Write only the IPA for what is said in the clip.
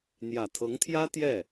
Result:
n̪ j ä˨˩ t̪ʰ ɤ˧˥ ŋ t̪ʰ j ä˥ t̪ j ɛ˥˩

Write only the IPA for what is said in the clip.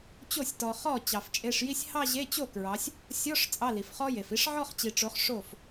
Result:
t͡ɕ o˥˩ sʲ t ɔ˨ χ ɔ˥˩ t͡ɕ ɑ˨ f t͡ʃʼ e˧˥˧ ʂ j i˥ sʲ h ɑ˥˧ ʑ e˧˥˧ t͡ɕ o˥˩ k ɹ ɑ˨˦ sʲ | sʲ ɔ˧˥˧ ʂ t͡sʼ ɑ˧˥˧ l i˨ f χ ɔ˥ j e˨ f i˥˧ ʂ ʕ ɔ˥˧ χ t͡ɕ i˨ ʈ͡ʂ o˨˦ χ ʂ o˥˩ f

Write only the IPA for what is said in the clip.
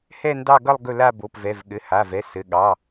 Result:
h ɛ˦˨ n d ɑ˦˨ ɡ ʌ˦˨ lˠ ɡ ɵ˦˨ l a˦˨ b o˩˧˩ p v ɛ˩˧˩ v ɠ ɘ˩˧˩ h a˩˧˩ v ɛ˩˧˩ s ɘ˩˧˩ ɠ ɑ˩˧˩

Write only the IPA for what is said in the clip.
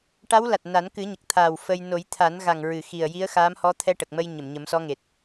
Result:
ʈ a˧˥ w l a˨˩ t̚ n a˨˩˦ n k ɨ˨˩˦ ɲ ə˨˩ k̚ t̪ʰ aː˨˩ w f ə˧ j n o˨˩˦ j t̪ʰ a˨˩˦ n ɣ a˨˩ ŋ ɹ ɨ˨˩ x i˨˩ ə̯ j i˧˥ ə̯ x aː˧˥ m h ɔ˧˥ t̪ʰ ɛ˧ ʈ ə˨˩ k̚ m ə˧ j ɲ ə˨˩˨ m ɲ ə˨˩˦ m s ɔ˧˥ ŋ e˨˩ t̚

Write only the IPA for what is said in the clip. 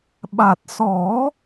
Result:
ɓ a˨˩ t̚ s ɔ˨˩˦

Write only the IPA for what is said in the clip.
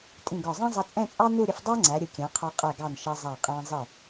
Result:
tʼ ĩ˧˩ ɡ ɒ˧˩ zˤ ĩ˥ zˤ ʌ˧ t͡sʼ ɛ̃˥˧ t͡sʼ ɑ˥ n u˥˧ ɾʲ ə˧ f dˤ æ˥ ŋ͡ǀ æ˩˧ ɾʲ ʊ˩˧ kʲ æ̃˩˧ qʰ ɒ˧ qʼ ɛ˧˩ ɡ ɑ˧˩ n ʃ ʌ˧ zˤ æ˧˩ qʼ æ̃˧ zˤ ɪ˧˩

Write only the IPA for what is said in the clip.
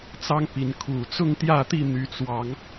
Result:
t͡s ɑ˦ ŋ p i˨˦ n kʰ u˨˩ t͡s ʊ˥˨ ŋ t̪ j ä˥˨ t̪ i˥˨ n̪ y˨˦ t͡s w ɑ˨˦ ŋ

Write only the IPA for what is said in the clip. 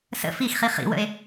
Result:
s ə̰ f i x χ i χ ḭ w ə̰ e̯

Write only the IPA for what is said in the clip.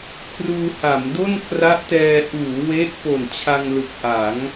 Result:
kʰ r uː˧ h a˩˦ m d o˥˩ n k r a˦˥ ʔ t ɛː˧ ʔ uː˩˦ w e˦˥ ʔ p o˨˩ n t͡ɕʰ a˧ ŋ l ɯ˨˩ k̚ ʔ a˩˦ ŋ

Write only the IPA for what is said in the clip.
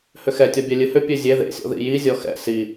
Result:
h ʏ x ɛ tʲ ɔ bʲ ɛ lʲ ɨ h ʏ pʲ ø zʲ e ð ḛ sʲ ɔ̰ ð ḭ j i zʲ ɔ x ɛ̰ s i

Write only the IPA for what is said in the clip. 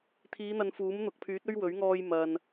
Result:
t̪ʰ iː˨˧ n̪ ɐ˨ n f uː˨˥ m n̪ ʊ˨ k̚ pʰ yː˨˥ t̚ ɵ˧ ɥ w ɵ˨˥ ɥ ŋ ɔː˧ j m ɐ˨ n

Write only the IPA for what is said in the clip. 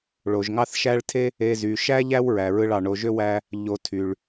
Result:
ɭ o˩ ʒ ŋ ɑ˦ θ ʃ æ˦ ɭ tʰ e˥ | e˨ z y˩ ʃ æ˦ ʎ æ˦ w ɹ æ˩ ɹ ɯ˨ ɭ ɑ˩ ɳ o˨ ʒ ø˥ w æ˦ | ʎ o˨ tʰ y˩ ɭ

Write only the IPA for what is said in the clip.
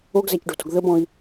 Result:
o ɡ z æ c ɖ o̤ t o̤ ɡ ð ə b ɔ̃ i̯

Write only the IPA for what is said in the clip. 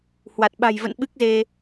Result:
h w a˨˩ t̚ ɓ a̤˨˩ j v ə̰˧˨ n ɓ ɨ˦˥ k̚ z e˧

